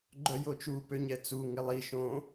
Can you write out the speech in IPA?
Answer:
ɡ͡ǃœjot͡ʃu pøɲɛt͡su ŋɪlˠi ʃõ

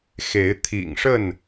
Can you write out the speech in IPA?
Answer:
xe˨˦ɪ̯t̪ʰḭ˨˩ŋʂə˥˨n

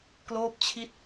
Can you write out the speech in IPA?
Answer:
kloː˦˥p̚t͡ɕʰi˦˥t̚

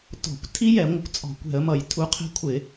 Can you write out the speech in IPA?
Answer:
tɔ̤˧˩˧kʷ tʰi˦˥jɛ˧˩˧ ŋʷə˧˩˧kʷt͡sʼɔ̤˧˩˧kʷɛ̤˧˩˧ə̯mʌ˧˩˧j tʰu˧˩˧qʰɛ̤˦˥ kʷʰɪ˧˩˧

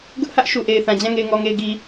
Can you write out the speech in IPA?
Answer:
ɡʊ˦ʔhä˦ʔ ʃu˨ʔe˨ɪ̯θã˨d͡ʑã˦˨ ŋe˨ɪ̯ŋɔ˨ŋe˨ɪ̯ ɡi˨

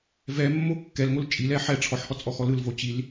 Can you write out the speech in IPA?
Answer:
vɛmːo kːɛlŋol t͡ʃʼilɛ ħɛ ʈ͡ʂʰɔħhɔt͡sʼɔxɔ lɯlvo t͡ɕil

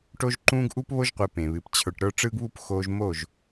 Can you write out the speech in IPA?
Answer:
ʈo˦ʒǃũː˦ɡ ʔu˦pβo˦ʒqʷe˨ pẽ˨βɨ˨p t͡ɕʰə˞˨ʈɾə˞˦ ʈ͡ʂɯː˦ɡβu˦p xoː˦ʒ mo˦˨ʒ

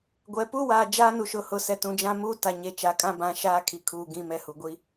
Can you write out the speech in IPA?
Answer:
ɡʷɛ˨ pu˦waː˨ d͡ʒaː˦nu˨ʃʊ˨hʊ˨ sɛ˨tũ˨d͡ʒã˦muː˦ ta˨ɲe˨ t͡ʃa˨kʼã˦bã˨˦ ʃaː˦kʰi˨kʰuː˨ ɡĩ˨mɛ˨ hu˨ɡʷi˦

